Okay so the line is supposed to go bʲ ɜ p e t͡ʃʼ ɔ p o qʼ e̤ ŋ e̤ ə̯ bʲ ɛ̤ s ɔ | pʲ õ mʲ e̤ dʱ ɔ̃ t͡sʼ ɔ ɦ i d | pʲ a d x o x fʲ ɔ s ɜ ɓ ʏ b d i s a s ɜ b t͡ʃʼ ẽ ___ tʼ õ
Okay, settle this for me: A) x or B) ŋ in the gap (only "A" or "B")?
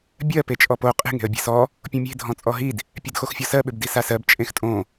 A